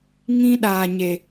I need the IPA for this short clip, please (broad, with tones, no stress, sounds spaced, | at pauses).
ŋ ĩ˦ ɗ aː˨ ɲ e˨